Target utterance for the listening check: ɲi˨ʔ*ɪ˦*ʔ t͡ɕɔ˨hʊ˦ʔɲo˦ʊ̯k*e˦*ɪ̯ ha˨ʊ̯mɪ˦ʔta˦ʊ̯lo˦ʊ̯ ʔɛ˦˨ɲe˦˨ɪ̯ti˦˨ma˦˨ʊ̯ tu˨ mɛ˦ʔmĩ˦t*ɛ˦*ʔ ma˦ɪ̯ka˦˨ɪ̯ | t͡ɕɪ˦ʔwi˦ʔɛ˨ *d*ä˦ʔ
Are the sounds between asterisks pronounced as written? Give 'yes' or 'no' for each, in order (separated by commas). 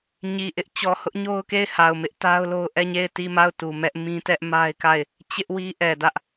yes, no, yes, yes